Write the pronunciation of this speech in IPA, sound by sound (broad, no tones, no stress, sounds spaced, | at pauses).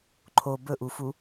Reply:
ǃʰ o b ɵ ʔ u f u